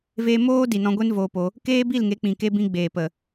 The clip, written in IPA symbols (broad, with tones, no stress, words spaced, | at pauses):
veː˧moː˦ di˨nɔ̃˧ ɡʷe˦nvoː˧po˧ | keː˦bi˦˨lŋe˨˦ k͡pĩ˨ke˧bĩ˧ɡ͡beː˨ pə˨